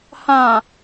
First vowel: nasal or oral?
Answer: nasal